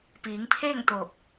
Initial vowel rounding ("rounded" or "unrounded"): unrounded